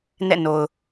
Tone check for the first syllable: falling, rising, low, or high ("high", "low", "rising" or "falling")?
falling